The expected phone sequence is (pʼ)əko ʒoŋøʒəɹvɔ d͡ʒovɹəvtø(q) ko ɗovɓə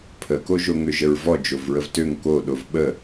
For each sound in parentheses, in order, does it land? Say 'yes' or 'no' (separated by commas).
no, no